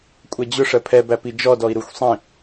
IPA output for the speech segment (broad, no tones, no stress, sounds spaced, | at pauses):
kʷʼ ɛ d͡ʑ ʊ ʂ ɜ pʰ ɛ b æ p i d͡ʒ ɔ d ɔ i̯ ɾ u xʷ sˤ ĩ